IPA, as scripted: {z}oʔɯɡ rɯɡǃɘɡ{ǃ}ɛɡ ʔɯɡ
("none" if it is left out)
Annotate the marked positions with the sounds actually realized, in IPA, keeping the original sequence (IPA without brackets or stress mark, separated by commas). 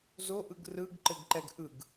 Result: z, ǃ